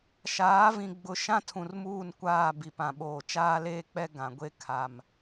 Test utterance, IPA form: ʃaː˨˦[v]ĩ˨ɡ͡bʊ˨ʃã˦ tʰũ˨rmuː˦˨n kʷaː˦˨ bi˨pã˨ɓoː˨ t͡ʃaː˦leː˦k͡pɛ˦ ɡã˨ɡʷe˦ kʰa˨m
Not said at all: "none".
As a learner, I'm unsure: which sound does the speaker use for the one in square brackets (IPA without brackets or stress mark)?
v